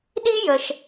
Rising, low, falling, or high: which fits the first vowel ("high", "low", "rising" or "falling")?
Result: high